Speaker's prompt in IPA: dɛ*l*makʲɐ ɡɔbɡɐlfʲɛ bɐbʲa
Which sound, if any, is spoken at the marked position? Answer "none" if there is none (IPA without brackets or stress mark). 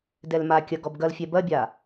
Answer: l